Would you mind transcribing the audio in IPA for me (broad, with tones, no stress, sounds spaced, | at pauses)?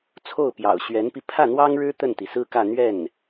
t͡sʰ o˥˩ ʊ̯ p j ɑ̰˨˩ ʊ̯ ɕ ɥ ɛ˧˥ n p i˧ pʰ ä˥˩ n̪ w ɑ˥ ŋ ɻ ɻ̩˥ t̪ ə˥˩ n t̪ i˩ s ɹ̩˥ k ä˥˧ n̪ ɥ ɛ˥˩ n